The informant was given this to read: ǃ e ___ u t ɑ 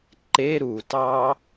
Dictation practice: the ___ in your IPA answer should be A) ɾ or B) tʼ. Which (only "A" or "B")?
A